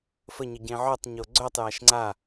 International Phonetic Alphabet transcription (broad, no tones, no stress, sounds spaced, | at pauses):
f ə ɲ ə ɟ ẽ ʕ œ tˤ ɲ o ɡ͡ǀ œ tˤ j a ʃ ŋ͡ǀ a